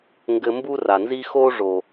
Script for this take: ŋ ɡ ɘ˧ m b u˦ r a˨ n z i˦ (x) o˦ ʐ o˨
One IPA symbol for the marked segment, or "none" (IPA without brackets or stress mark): x